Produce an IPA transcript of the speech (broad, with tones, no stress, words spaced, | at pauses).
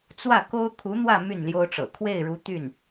t͡swä˥˩ko˥ʊ̯ kʰu˧˥n̪wä˥˧ my˥˩nljo˥ʊ̯ʈ͡ʂɤ̰˨˩ kʰwe˥˩ɪ̯ɻu˧˥t̪y˥˩n